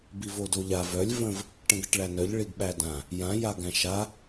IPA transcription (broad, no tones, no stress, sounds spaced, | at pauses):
b i v o d o ʎ a v œ lʲ v ə̃ v | ʈ ə̃ ɡ ə ʈ ɭ æ n œ ʎ ɭ i ɡ ɓ æ d ã | j ã j a ɡ æ̃ ʃ a